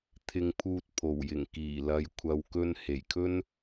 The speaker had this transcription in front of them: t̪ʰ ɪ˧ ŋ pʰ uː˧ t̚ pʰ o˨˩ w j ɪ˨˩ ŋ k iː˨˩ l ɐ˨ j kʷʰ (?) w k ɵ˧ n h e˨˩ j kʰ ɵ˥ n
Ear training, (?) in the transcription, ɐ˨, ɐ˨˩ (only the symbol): ɐ˨